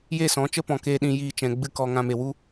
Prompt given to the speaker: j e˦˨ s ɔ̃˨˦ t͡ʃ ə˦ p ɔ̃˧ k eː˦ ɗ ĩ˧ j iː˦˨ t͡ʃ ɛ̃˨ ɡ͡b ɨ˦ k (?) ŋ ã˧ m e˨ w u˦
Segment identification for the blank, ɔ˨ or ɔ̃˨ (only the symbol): ɔ˨